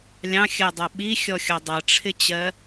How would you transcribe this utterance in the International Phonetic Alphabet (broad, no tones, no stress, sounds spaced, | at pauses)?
lʲ ɑ̃ xʲ ɜ dˤ ʌ ɓ i xʲ ɔ xʲ ɒ dˤ ʌ ʈ͡ʂʰ ɪ t͡ɕ ɜ